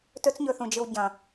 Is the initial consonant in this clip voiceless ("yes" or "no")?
yes